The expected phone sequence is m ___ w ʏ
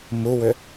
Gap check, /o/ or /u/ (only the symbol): u